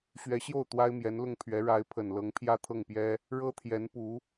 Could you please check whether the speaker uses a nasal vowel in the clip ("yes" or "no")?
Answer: no